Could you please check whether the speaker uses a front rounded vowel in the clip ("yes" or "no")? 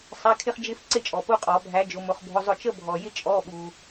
no